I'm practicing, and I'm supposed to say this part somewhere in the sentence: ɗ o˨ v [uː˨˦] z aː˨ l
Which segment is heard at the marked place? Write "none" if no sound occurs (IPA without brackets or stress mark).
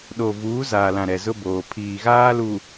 uː˨˦